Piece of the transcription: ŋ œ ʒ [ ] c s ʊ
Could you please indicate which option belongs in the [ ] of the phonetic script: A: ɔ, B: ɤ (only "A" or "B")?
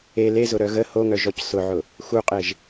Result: A